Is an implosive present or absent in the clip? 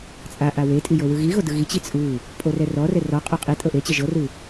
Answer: absent